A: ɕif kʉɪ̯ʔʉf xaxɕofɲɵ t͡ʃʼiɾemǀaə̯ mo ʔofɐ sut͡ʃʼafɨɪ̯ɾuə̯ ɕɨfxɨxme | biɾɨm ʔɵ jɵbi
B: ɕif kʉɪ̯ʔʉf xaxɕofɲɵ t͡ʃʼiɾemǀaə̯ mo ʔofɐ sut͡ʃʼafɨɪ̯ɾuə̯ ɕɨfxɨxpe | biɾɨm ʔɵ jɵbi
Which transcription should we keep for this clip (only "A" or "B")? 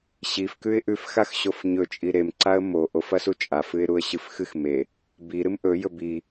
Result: A